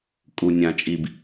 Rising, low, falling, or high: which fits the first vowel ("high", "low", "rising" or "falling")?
low